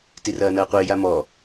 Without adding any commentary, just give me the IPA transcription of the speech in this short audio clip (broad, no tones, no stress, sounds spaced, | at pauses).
t i r ɐː n ɐː qʷ ɪː j a m ɔ